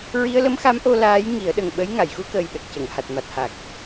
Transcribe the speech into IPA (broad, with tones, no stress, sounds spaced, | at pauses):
ɹ i˧ ə̯ l ə˧˥ m x a˧˥ m ʔ o˧ l aː˧˥ j ŋ i˨˩˦ ə̯ ɗ ə˨˩ ŋ ɓ ə˧˥ j ŋ a˨˩˨ j x u˧ k əː˨˩ j ɗ ə˨˩ k̚ c ə˨˩˨ ŋ h a˨˩ t̚ m a˨˩ t̚ h a˨˩ k̚